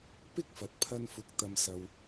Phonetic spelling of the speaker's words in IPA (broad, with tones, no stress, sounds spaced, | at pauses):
p ɪ˥ k̚ f ɐ˨˥ t̚ pʰ ɐ˧ n f ʊ˨˥ k̚ t̪ ɐ˧ m s ɐ˧ w